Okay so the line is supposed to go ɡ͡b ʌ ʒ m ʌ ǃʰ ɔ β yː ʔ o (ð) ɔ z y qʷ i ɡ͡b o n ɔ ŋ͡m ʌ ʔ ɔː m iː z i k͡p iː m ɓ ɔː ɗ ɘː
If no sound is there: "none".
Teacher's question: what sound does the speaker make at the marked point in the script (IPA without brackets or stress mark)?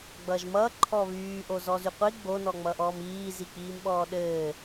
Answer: z